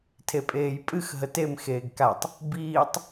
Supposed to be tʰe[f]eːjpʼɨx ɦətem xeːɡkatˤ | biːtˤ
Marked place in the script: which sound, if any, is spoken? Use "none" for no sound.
pʼ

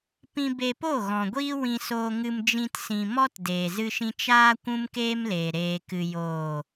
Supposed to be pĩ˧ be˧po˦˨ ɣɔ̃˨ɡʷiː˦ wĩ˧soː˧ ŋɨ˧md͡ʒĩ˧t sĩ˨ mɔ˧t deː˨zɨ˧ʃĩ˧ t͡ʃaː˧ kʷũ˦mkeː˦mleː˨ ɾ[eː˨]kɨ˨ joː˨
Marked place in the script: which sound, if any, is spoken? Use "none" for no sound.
eː˨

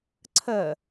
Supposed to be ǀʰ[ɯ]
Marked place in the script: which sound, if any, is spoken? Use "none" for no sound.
ə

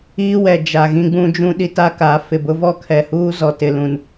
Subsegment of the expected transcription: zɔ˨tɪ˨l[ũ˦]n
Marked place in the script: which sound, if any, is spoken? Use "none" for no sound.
ũ˨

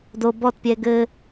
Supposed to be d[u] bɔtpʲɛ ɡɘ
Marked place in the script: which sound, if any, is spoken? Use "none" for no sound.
o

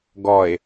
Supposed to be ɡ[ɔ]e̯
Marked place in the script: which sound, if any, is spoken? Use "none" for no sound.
ɔ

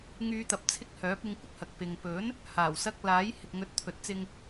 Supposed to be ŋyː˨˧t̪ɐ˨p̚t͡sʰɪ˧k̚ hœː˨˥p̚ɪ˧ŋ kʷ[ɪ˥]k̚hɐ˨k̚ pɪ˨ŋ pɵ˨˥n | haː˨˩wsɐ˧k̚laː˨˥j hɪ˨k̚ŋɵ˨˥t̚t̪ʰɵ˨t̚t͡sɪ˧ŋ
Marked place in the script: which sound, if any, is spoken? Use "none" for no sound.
ɪ˥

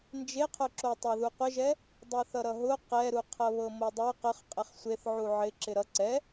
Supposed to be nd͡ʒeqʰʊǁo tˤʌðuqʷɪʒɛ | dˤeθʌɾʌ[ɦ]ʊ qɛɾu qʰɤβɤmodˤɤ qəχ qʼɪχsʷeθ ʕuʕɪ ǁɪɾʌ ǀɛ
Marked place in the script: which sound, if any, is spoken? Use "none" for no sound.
ɦ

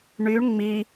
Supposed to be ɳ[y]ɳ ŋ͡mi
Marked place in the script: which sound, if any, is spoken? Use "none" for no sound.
y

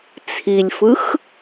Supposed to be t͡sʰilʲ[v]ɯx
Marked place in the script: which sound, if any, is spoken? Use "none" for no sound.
f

